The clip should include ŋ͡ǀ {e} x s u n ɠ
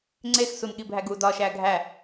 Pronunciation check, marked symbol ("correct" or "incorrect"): correct